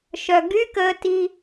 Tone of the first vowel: low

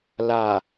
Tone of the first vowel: low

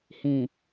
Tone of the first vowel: low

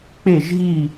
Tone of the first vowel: falling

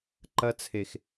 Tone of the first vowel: high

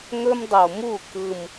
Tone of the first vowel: high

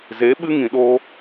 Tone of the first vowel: rising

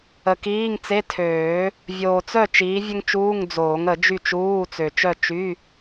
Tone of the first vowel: low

